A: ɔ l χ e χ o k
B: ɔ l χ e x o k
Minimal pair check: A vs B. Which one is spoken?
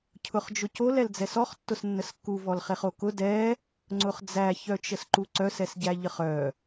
A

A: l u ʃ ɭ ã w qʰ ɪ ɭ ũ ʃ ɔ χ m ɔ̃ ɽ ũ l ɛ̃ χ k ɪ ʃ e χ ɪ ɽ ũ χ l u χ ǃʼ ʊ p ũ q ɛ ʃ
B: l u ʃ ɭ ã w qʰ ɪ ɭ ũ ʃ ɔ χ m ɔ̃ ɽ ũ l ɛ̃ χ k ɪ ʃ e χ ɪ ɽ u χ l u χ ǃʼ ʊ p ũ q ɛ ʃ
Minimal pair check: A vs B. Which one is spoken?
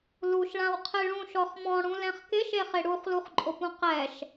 B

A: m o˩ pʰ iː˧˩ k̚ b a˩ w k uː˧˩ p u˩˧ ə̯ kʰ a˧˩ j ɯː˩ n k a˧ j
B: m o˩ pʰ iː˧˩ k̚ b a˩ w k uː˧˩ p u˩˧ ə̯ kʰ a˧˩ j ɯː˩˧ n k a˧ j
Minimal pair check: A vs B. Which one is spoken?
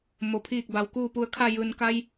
A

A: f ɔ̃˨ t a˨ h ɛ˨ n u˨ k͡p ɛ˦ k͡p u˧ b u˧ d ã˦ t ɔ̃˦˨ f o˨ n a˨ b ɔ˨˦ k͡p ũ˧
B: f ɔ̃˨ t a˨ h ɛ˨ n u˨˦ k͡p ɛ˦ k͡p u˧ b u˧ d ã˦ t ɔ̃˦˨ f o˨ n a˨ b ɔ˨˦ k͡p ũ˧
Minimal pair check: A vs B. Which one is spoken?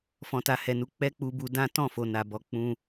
B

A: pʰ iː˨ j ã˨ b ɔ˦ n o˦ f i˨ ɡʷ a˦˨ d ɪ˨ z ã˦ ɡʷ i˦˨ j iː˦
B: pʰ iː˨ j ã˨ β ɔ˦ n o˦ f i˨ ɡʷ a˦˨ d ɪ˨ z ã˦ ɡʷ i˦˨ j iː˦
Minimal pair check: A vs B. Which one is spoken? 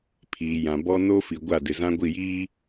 A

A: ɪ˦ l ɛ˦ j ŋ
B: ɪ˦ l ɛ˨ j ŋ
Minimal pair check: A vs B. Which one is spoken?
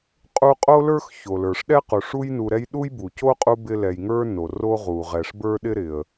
B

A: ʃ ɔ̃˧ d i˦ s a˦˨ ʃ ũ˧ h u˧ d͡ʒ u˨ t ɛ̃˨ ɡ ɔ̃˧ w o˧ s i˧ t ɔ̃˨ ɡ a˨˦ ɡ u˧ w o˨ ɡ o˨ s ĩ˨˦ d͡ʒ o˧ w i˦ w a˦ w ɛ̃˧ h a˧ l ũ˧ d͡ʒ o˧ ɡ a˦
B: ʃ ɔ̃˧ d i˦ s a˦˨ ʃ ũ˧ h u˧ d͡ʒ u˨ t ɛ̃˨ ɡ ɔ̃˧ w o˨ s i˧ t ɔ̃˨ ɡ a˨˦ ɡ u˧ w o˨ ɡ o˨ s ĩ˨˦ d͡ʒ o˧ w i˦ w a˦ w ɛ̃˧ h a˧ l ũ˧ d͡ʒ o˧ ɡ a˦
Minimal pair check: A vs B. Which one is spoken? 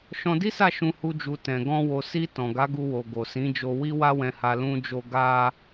B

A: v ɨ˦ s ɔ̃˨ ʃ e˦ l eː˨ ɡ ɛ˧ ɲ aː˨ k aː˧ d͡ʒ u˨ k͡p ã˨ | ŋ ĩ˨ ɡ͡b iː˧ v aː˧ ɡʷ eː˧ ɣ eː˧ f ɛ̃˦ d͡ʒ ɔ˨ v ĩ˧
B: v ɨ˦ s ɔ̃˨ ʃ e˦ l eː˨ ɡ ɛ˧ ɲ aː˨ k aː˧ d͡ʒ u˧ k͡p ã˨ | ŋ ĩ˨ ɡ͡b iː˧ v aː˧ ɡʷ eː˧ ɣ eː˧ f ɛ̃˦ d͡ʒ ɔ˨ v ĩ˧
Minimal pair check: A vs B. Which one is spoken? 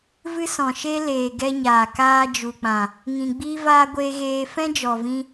A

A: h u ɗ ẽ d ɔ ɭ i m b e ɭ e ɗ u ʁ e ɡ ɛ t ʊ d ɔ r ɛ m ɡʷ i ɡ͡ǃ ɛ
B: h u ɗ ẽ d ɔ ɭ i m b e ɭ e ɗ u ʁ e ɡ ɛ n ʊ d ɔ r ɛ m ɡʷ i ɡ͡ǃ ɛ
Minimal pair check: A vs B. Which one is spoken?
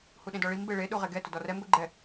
A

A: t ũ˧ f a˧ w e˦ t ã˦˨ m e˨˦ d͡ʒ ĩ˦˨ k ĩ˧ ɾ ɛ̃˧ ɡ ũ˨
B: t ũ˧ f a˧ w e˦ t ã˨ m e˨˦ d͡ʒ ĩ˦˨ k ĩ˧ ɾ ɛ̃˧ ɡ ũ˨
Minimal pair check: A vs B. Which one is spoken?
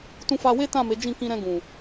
A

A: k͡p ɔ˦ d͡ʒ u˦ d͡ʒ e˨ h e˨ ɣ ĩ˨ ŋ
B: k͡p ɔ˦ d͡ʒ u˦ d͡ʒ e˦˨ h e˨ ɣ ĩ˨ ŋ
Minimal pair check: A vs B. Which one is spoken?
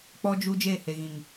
B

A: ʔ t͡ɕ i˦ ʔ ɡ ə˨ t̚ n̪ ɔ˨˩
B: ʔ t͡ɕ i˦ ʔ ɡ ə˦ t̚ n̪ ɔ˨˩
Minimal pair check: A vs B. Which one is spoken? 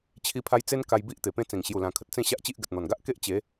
A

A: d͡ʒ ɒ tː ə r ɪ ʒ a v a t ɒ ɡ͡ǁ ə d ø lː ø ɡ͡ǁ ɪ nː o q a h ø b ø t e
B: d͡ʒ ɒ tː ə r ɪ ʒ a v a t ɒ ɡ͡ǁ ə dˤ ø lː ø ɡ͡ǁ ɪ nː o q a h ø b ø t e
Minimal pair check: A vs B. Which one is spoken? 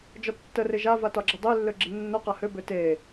B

